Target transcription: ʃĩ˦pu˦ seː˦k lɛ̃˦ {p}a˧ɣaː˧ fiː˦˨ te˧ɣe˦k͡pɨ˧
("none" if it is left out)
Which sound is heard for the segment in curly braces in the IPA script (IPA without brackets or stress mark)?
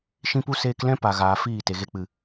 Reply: p